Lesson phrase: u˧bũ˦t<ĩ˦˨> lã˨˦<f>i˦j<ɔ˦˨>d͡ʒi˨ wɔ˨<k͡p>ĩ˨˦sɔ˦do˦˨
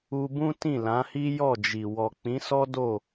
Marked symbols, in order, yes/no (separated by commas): yes, no, yes, yes